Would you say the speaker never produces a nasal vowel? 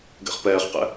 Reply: yes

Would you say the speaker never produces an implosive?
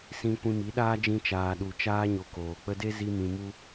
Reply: no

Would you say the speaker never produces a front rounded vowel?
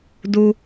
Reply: yes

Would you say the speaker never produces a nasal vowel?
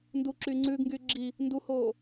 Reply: yes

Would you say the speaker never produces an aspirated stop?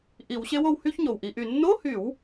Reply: yes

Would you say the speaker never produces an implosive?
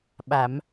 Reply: no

